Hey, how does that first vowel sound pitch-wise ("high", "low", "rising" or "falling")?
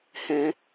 high